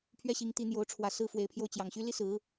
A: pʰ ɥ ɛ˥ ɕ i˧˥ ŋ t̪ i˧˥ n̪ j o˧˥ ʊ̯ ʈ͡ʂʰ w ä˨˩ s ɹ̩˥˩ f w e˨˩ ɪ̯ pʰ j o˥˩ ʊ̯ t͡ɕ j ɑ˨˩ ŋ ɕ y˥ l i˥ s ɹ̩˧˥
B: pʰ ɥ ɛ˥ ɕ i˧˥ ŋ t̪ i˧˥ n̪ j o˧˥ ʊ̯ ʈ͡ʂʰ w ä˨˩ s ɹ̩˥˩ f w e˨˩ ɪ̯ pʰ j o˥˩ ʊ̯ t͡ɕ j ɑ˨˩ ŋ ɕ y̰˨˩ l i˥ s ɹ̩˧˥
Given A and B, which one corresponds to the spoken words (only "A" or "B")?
A